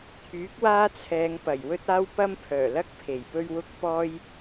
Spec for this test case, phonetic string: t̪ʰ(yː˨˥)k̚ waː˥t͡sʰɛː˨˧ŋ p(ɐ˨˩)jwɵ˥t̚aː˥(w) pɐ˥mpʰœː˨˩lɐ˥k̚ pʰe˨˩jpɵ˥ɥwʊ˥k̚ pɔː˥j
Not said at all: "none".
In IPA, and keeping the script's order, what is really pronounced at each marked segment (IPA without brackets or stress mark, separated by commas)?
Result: yː˨˥, ɐ˨˩, w